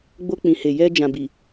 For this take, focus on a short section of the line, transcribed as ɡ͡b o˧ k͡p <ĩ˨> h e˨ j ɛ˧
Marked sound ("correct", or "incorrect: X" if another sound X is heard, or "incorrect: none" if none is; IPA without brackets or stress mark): correct